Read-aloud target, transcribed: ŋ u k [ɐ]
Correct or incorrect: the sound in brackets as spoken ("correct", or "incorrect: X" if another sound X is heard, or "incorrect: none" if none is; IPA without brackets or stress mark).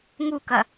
correct